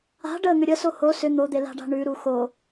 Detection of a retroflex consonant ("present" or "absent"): present